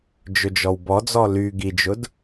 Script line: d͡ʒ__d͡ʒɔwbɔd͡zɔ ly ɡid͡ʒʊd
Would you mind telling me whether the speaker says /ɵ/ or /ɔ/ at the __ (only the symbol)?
ɵ